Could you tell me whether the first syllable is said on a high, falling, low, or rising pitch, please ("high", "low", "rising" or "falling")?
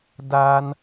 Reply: low